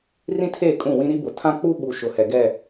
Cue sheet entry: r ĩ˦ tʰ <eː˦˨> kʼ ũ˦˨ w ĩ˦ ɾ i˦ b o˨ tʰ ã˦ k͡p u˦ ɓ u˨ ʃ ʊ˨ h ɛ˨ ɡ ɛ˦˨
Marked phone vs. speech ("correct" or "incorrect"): correct